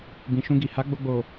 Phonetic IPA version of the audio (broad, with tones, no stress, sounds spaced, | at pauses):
b ĩ˨ ʃ ũ˧ ɡ i˨ h a˨˦ ɡ͡b o˧ ɡ͡b o˨